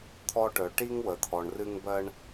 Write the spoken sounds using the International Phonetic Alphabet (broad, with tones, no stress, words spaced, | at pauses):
t̪ʰɔ˦ʈœ˨ ʈi˦ŋ wə˨t̪ʰɔ˨ɳrɨ˦ŋ bɜ˦ɳ